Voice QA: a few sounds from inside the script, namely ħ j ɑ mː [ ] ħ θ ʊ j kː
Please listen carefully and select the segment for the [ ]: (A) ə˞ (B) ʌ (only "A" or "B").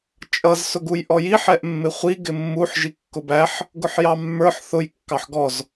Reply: A